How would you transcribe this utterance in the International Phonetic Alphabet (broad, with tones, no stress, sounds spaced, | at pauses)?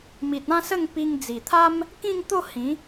m i˨ t̚ ã˥˧ s ə˥˧ ŋ p i˧ ŋ d͡z i˨˩ t̪ʰ a˦ m | k ĩ˥˧ ŋ t̪ o˥˧ h ĩ˨˦